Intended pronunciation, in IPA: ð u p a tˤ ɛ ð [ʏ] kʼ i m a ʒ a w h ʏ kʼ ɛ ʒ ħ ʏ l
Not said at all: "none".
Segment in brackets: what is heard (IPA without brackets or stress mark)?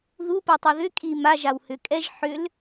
ʏ